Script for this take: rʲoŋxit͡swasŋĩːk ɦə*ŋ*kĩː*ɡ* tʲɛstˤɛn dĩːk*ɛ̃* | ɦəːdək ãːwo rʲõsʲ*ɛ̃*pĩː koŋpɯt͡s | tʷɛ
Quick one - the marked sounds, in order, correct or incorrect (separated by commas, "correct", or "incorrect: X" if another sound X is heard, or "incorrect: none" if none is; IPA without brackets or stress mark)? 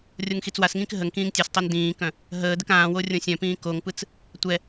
correct, incorrect: ŋ, incorrect: œ̃, incorrect: œ̃